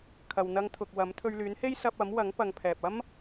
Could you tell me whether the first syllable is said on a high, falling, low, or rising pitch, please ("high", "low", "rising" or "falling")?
low